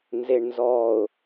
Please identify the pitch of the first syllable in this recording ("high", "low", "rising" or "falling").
low